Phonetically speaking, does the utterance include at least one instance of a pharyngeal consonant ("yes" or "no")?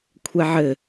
yes